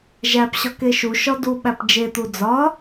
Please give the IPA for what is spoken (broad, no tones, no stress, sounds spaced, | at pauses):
ʒ æ p ɕ ɒ k e ʃ u ʃ ɒ d u ɓ æ p d͡ʒ e t̪ u d͡z ɒ